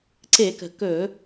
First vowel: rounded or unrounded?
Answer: unrounded